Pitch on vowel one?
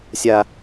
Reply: high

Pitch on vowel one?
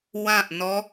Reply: falling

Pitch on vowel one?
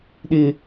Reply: high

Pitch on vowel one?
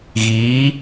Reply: rising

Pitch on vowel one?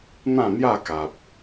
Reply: falling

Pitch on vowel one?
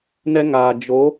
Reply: high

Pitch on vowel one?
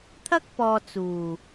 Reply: high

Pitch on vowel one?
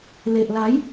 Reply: low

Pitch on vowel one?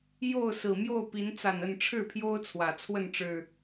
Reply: falling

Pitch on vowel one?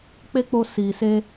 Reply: high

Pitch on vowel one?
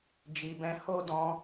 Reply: low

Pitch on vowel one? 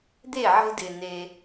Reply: falling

